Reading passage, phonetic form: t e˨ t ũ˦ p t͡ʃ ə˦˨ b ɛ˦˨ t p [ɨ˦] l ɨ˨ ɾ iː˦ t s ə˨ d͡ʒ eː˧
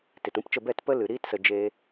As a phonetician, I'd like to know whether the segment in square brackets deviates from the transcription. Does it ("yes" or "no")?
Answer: yes